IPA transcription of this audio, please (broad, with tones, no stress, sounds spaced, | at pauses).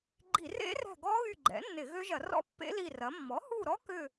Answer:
ɡ͡ǃ i˧˩˧ r ḛ˦˥ r ɛ̤˦˨ ɡ ɔ˦˥ ɣ y˦˨ ɡ͡ǃ ɛ̰˩˥ nː ɪ˧˩˧ ɣ ø˦˥ ʒ ɐ˧˩˧ r ɔ̰˦˥ pː ḛ˦˥ l i˦˨ r ɐ˩˥ mː ɔ˩˥ h u˦˨ ɾ ɔ˦˥ k ʏ˦˨